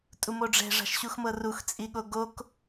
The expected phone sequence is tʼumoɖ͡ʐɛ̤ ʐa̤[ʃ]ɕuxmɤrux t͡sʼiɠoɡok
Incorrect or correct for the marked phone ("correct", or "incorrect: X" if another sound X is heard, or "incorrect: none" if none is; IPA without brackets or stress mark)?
correct